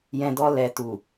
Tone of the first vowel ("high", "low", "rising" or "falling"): low